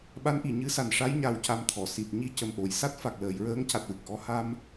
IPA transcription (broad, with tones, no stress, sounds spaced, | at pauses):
ɓ a˧˥ n ʔ i˨˩˨ ɲ ɨ˧˥ s a˨˩ n ʂ a˧˥ j ɲ a˨˩ w c a˧ m t̪ʰ ɔ˨˩˨ s i˨˩ t̚ ɲ i˧ c ə˨˩ m ʔ o˨˩˨ j s a˦˥ t̚ f a˨˩ k̚ l əː˨˩˨ j ɹ əː˧˥ ŋ c a˨˩ t̚ w ɨ˨˩ k̚ ʔ ɔ˧ h a˧ m